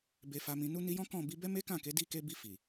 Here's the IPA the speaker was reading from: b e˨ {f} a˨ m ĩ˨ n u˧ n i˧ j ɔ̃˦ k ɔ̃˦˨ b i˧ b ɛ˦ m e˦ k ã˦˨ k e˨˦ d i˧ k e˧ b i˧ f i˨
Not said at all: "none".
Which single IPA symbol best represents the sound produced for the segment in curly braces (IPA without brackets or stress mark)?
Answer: f